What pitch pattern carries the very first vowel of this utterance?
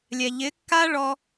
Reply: low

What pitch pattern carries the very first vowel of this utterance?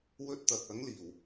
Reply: high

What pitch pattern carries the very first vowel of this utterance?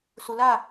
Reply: low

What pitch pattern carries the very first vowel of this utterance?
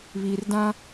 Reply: low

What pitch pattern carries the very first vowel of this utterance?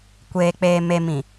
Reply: low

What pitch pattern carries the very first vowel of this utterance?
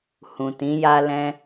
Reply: low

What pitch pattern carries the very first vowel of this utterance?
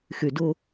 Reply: low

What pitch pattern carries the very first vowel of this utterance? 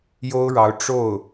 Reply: high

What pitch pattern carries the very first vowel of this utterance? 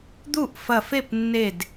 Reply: falling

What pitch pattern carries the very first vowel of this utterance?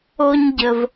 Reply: high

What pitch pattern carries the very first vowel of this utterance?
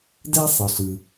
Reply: high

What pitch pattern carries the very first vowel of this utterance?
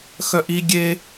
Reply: high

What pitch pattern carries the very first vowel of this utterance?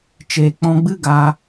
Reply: low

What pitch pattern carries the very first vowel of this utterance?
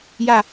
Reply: falling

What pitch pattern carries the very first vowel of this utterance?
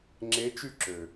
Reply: rising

